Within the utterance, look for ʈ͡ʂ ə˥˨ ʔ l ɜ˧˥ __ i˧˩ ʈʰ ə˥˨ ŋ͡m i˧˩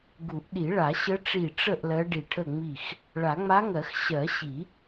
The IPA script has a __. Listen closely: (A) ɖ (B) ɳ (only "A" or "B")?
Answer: A